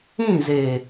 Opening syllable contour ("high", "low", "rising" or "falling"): falling